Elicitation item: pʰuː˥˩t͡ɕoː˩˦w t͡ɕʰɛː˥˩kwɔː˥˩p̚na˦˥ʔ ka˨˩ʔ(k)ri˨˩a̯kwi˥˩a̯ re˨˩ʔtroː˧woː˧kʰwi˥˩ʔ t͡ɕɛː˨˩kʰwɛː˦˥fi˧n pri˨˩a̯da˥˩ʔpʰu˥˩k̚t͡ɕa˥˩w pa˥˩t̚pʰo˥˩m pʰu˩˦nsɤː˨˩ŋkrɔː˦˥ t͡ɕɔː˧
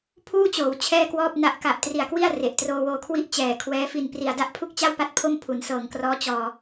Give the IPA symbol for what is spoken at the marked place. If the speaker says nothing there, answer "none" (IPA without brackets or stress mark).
t